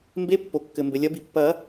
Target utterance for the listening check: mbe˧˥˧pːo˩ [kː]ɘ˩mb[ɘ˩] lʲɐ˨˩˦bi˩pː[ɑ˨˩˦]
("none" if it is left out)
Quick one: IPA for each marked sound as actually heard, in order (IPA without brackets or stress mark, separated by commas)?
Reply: kː, ɘ˩, ɐ˨˩˦